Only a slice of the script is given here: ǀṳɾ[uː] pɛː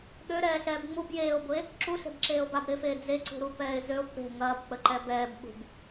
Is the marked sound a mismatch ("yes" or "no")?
yes